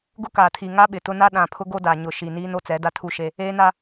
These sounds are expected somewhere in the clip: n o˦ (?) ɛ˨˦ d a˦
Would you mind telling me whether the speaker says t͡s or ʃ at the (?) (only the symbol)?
t͡s